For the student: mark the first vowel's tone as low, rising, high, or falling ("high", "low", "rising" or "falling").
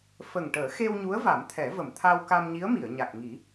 low